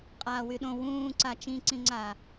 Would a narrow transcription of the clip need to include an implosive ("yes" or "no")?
yes